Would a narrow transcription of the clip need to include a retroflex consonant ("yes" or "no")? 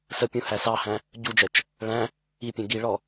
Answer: yes